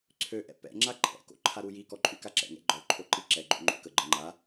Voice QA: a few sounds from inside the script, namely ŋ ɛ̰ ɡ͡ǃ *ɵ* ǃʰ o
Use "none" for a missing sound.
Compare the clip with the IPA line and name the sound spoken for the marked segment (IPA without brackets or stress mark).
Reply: ɔ